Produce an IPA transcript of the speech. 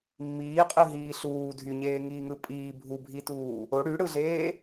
mː iː qʼ ɯ ɦ iː ɬ uː dʱ y ɲ eː ŋ iː ŋ ɯ pʼ iː bʱ u bʱ i t uː | o ɽ y ɽ ɯ ɮ eː

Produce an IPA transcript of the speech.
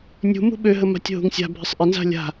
nʲ ṳ m ṳ ɓ ø ɦ ə m a̤ tʲ ɦ ṳ ŋ sʲ a̤ bʱ ɪ sˤ ʔ ɪ n z a̤ lʲ a̤

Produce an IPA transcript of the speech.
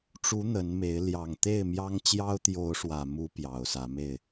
ʈ͡ʂ u˨˦ n̪ ə˨˦ n m e˨˦ ɪ̯ l j ɑ˨˩ ŋ t̪ e˥˨ ɪ̯ m j ɑ˦ ŋ t͡ɕ j ɑ˦ ʊ̯ t̪ j o˨˦ ʊ̯ ʂ w ä˨˩ m u˨˦ p j ɑ˨˩ ʊ̯ s ä˨˦ m e˥˨ ɪ̯

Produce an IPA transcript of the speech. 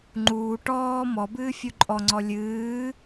ŋ͡ǃ uː ʈ ɔː m ɔ b ɨː fʲ u ǃʼ ɔ ŋ͡ǀ ɔ lʲ ɨː

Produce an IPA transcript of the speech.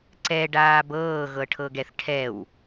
ǀ ɛ ɖ aː b ɤː ɣ ɤ ʈʰ ɤ ɡ ɛ θ ʈʰ ɛ w

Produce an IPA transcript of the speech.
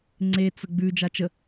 ŋ͡ǀ e t͡s ə ɡ͡b ʉ d͡ʒ a t͡ʃ ə

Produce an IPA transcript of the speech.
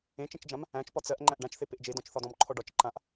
ẽ t͡ʃ ẽ t͡ʃ d͡ʒ ã m | æ̃ t͡ʃ p ɒ t͡s ɜ ʔ ŋ͡ǃ æ̃ ʔ ɖ ã t͡ʃ θ e p e ʔ d͡ʒ e d ɔ̃ t͡ʃ θ ɒ d ɔ̃ m ǃʰ ɔ ɖ ɒ t͡ʃ ǃ ã ʔ

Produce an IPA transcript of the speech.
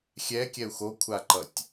xʲ ɛ kʲ ɛ u̯ x o kʷʰ a ǃ ʌ tʲ

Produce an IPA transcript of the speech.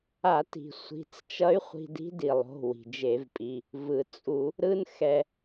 a˧˩˧ t i̤˩ sʷ i̤˩˧˩ t͡s t͡ʃ ʌ˧˥ y̯ χʷ i̤˧ d i̤˧˥ d i˩ lˠ o̤˩˧˩ w i̤˩ d͡ʒ e˧˩˧ v pʼ i˩˧˩ | v ɯ˩ t͡sʼ u˧˩˧ | ɾ ɯ˧ n x ɛ˩

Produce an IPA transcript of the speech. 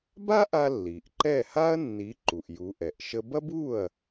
b a˥ ʔ a˧ lː i˩ ʔ ǃ ɛ˥˩ h a˥ ɐ̯ nː i˩˥ ǃ u˩ ʔ j u˩˥ ʔ ɛ˩ ʔ ʃ ə˥ b ɐ˥ b u˥˩ ɐ̯

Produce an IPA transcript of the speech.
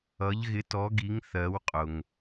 ʌ˨˥ ʎ ɣ ɪ˨˥ t ɔ˨˥ ɡ i˨˥ ŋ θ ɜ˨˥ w qʼ ʊ˨ ŋ

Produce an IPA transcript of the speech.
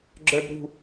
ɡ͡ǁ ə˞ b ɾ ṳ

